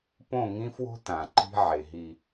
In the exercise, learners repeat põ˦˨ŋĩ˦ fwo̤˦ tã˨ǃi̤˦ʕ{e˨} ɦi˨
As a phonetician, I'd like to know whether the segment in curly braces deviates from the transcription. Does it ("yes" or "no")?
no